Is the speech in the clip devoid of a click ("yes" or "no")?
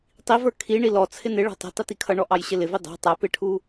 yes